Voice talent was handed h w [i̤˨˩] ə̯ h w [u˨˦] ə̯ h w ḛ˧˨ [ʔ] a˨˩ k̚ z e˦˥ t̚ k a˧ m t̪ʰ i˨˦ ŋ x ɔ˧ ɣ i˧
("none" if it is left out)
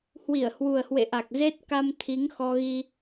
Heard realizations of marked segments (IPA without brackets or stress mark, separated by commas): i˧˩, u˨˩, ʔ